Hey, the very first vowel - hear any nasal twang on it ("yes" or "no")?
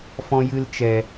yes